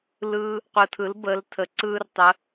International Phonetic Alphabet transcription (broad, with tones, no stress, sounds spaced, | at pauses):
l ɯ˧ | qʷ ɯ˨ tʰ ɯ˨˦ l b əː˨˦ l tʰ ə˨ ǀ ɯː˦ r tˤ ə˧